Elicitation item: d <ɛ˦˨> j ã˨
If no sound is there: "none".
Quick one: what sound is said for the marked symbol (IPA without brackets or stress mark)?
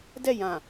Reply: ɛ˦˨